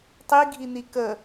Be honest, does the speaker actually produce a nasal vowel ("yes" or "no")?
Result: no